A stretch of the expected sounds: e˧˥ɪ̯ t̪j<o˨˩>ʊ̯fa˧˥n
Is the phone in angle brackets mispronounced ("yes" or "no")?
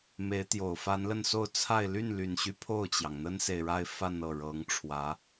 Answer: no